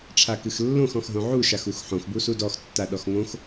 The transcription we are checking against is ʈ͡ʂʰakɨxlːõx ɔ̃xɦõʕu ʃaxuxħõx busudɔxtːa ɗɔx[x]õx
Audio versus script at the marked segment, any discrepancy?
yes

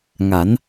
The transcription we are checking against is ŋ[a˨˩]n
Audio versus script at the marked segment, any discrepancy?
yes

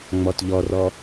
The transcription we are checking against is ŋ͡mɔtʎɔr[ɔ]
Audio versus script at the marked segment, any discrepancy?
no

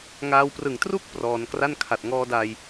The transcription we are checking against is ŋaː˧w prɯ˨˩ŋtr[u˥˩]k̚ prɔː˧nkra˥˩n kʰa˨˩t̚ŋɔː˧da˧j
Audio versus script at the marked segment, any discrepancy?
no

